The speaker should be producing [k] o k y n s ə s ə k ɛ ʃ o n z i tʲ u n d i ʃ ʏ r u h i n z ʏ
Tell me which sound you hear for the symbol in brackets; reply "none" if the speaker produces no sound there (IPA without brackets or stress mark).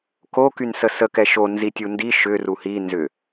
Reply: k